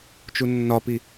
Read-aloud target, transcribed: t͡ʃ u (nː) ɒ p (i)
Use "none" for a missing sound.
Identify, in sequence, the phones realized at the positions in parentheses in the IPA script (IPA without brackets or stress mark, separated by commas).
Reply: nː, i